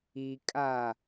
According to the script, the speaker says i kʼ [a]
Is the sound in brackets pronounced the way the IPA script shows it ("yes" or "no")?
yes